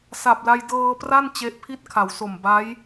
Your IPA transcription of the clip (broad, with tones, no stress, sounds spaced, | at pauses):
s a˨˩ p̚ l a˧ j d ɤː˧ p r a˥˩ n t͡ɕ e˦˥ ʔ pʰ i˥˩ t̚ kʰ a˩˦ w s o˨˩ m b a˦˥ j